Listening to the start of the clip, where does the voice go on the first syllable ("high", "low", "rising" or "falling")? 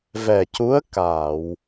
low